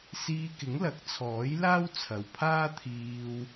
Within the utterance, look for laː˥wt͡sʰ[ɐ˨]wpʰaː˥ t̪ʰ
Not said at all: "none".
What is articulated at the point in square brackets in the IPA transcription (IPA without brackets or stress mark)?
ɐ˨